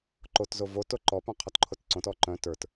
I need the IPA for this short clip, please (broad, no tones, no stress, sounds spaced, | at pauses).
ǃ o t z o v o t o ǃ ɔ p œ̃ qʰ ɔ t ǃʰ o t ǀ õ t ɔ ǃ œ̃ t ə˞ t